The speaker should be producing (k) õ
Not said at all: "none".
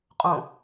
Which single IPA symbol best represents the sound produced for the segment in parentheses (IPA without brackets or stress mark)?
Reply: qʼ